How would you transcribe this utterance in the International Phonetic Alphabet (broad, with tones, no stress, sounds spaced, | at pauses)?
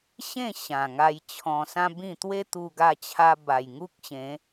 ɕ ẽ˥˧ ɕ ã˨˩ ŋ a˧ j t͡ɕʰ ɔ̃˧ s ã˦ b ĩ˥˧ t̪ w e˦ t̪ u˧ ɡ a˧ t͡ɕʰ a˧ b a˨˩ j ŋ u˦ k̚ ɕ ẽ˨˦